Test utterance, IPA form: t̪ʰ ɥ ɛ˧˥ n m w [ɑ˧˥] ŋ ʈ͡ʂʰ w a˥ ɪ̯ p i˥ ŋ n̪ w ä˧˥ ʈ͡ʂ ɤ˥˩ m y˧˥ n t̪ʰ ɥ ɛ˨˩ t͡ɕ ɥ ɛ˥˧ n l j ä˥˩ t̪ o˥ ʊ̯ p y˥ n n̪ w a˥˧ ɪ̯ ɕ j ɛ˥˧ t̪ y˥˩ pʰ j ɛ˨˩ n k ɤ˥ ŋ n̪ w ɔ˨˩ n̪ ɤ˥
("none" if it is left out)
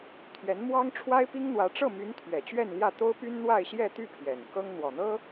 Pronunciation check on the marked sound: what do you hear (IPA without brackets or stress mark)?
ɑ˥